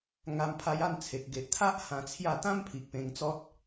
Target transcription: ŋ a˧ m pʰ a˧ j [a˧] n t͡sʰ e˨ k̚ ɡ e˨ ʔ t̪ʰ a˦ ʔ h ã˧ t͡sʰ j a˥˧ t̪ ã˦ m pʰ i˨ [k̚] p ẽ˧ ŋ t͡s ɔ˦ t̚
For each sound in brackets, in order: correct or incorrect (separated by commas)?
incorrect, correct